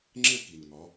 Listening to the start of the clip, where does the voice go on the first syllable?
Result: falling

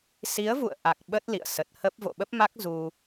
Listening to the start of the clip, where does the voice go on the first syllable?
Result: rising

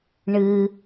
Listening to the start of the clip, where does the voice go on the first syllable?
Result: low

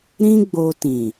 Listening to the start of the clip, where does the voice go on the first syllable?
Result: high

